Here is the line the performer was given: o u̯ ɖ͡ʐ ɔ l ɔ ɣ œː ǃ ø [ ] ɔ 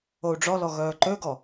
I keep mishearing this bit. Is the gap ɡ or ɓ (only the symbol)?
ɡ